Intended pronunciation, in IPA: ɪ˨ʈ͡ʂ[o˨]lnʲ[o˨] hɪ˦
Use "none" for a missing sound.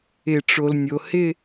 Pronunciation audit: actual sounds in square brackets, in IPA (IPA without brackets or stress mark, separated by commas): o˨, o˨